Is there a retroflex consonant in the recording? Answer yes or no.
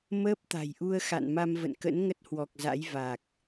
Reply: no